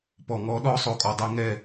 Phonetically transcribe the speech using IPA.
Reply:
pɔ˨ ŋɔ˦ɗɔ˦sˤo˨ kʼɔ˨dˤe˦ ŋɛ˦˨

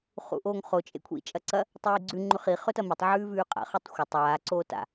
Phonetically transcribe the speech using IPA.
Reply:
χṵʔoːŋχo t͡ʃʼḛkʷʰḭ t͡ʃʼɐǀɐ | tˤiːɡ͡ǀʉ ŋ͡ǃʉχi χɵtɐmɵtˤ ʕʉːvʉːqʼa̰ χutˤxʷɐ tˤaː ǀoːta̰

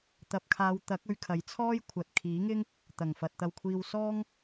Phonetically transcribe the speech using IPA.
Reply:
t̪ɐ˨p̚kʰaː˨˧w t̪ɐ˨˥k̚ ɵ˧ɥkʰɐ˨˥jt͡sʰɔː˥jkʷʰɐ˨t̚ kʰiː˨˥ŋɪ˥ŋ | t̪ɐ˨˩ŋfɐ˨t̚t̪ɐ˧wkʷʰiː˧w sɔː˥ŋ

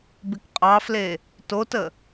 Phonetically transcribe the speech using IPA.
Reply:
bɪkqʼɑfle | totə

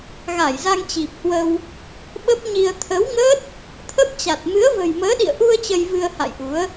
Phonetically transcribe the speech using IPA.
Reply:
ɣa˧˩jza˧ŋt͡ɕi˨˩p̚hwə˧w | ɓə˦˥p̚ɲi˧ə̯ t̪ʰə˨˦wŋə˦˥t̚ | t̪ʰə˦˥p̚t͡ɕa˨˩t̚ mɨ˨˦ə̯və̤˨˩jməː˨˦ ɗḭ˧˨ə̯ʔu˧ə̯ t͡ɕə˧jvɨ˧ə̯ha̰˧˨jʔu˨˦ə̯

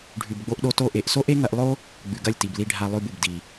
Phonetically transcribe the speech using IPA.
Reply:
ɖʱʉ˨bɡ͡bo˧ʔɗo˧ to˧ʔe˨ʔ so˦ʔe˦ŋɐ˧ʔlˠo˦ | ɡ͡bʉ˨ɡɐ˦˨lʲti˨bli˧ ɖʱa˧lˠʉ˧bu˨bdi˨

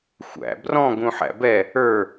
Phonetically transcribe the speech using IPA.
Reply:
xʷæ̰ brɔ̃ɡũħæ̰ bɛ | ə˞

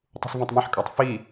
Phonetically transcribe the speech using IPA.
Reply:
tˤṳsvõtˤmãħkʼatˤ fi

